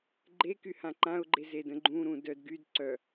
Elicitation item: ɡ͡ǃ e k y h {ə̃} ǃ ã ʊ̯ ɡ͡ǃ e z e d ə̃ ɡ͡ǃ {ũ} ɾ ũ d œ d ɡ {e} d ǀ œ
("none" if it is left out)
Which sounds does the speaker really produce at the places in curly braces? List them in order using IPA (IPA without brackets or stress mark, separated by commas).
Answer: ã, ũ, y